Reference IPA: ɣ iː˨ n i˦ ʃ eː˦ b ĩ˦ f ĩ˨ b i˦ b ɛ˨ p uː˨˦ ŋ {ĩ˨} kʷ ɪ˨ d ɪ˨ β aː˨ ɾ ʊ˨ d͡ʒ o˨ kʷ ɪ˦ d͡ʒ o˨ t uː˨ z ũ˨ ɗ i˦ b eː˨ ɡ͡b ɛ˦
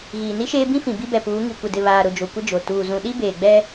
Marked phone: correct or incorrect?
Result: incorrect